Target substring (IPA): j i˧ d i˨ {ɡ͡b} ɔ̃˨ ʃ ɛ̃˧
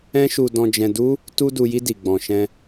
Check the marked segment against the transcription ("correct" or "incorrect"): correct